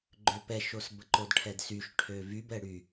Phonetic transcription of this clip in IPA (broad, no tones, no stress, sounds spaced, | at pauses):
ɡ͡ǃ ø p ɛ ʃ o s b ə ǃ o d ʈʰ ɛ d s y ʃ ʈʰ ø v y b ɛ ɽ y